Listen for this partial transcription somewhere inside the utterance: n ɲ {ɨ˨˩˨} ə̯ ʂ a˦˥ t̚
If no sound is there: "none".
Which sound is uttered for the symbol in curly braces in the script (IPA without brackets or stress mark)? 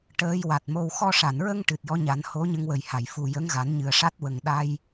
ɨ˨˩